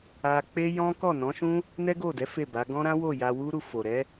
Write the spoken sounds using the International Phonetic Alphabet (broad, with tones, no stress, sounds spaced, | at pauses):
a˧ k͡p e˦ j ɔ̃˦ k ɔ˦˨ n ɔ̃˨˦ ʃ ũ˦ | n ɛ˦ ɡ o˦˨ d ɛ˨˦ f e˦˨ b a˨˦ ɡ ɔ̃˦ ɾ ã˦ w o˦˨ j a˧ w u˦ ɾ u˧ f o˨ ɾ ɛ˨˦